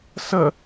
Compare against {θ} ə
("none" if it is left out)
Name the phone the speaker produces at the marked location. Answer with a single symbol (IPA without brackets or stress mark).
s